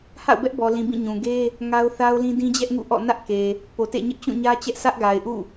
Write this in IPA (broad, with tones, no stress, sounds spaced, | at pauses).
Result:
h a̰˦˨ ʊ̯ b ɛ˦ ʔ b ɔ˨ l ĩ˨ b ĩ˦˨ ɲ ũ˨ ɡ e˦ | ŋ a˦ ʊ̯ θ a˦ ʊ̯ l ĩ˦ d ĩ˦ d͡ʑ ɛ˦ ʔ ŋ ṵ˦˨ ʔ ɔ̰˦˨ n ä˦ ʔ k e˨ | p o˨ t ḛ˦˨ ɲ ɪ˦ ʔ t͡ɕ ũ˦˨ ɲ ä˦ t͡ɕ ɛ˦ ʔ s ä˦ ʔ ɡ a˨ ɪ̯ ʔ ṵ˦˨